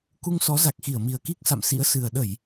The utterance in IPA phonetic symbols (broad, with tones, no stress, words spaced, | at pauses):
ku˧ŋsɔ˨˦za˨˩k̚xi˧˩ə̯ mi˨˩ə̯ki˦˥k̚sa̰˧˨msḭ˧˥ə̯ sɨ˨˩ə̯ ɗə˧˩˨j